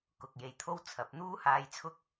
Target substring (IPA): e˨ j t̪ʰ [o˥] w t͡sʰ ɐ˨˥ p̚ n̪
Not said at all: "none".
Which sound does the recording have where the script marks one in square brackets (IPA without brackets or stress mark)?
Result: o˥